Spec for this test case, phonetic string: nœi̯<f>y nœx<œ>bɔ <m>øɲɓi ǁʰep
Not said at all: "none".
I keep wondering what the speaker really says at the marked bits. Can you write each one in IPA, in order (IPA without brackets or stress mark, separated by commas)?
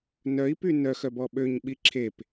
p, œ, ɓ